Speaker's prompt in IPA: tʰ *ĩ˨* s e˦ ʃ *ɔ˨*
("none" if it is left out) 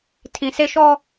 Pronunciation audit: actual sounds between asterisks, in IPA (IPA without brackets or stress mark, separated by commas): ĩ˨, ɔ˦